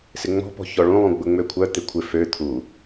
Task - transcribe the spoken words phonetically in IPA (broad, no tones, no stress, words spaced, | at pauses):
sɪŋ͡mɔ̤pɔ̤ çɔɭũlˠũ ɡ͡bʊŋ͡møkʷʰœt̪ɪ kʷʰɪ fø t̪ʰu